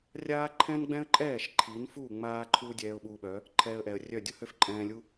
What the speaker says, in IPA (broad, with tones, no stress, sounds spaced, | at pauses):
rʲ aː˦ ǃʰ ɛ̃˦ n ɡ͡b ɛ̃˦ ə̯ ǃʼ ɛː˦˨ ʃ ǃʰ i˨˦ n f u˦˨ ŋ͡m aː˦ ǃʰ uː˦ dʲ ɛː˧ ʊ̯ ɓ uː˧ ɓ œ˨˦ | ǃʰ ɛː˧ ə̯ ʔ ɛ˨ ə̯ rʲ œ˦˨ dʲ ʊ˦ h ø˦ f ǃʼ ɛ̃ː˧ lʲ u˦